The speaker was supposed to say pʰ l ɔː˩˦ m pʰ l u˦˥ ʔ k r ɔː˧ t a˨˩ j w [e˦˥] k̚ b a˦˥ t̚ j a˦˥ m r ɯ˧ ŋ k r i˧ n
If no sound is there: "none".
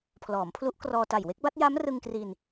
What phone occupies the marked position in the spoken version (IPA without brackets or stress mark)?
e˦˥